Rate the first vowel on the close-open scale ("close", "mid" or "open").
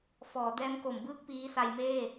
mid